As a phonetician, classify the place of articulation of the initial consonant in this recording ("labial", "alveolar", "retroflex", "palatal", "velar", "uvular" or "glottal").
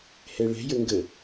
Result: glottal